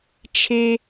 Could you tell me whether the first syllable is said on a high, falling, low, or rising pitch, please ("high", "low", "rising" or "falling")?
high